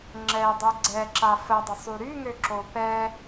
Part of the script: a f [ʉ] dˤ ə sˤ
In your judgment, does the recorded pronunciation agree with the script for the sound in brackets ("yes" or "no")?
no